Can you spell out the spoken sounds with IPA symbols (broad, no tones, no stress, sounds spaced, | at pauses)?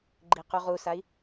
ɡ͡ǃ i q u ʁ u s a i̯